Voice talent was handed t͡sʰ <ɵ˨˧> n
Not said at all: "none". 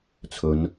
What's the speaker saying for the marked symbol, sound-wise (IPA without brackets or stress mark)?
ɵ˨˧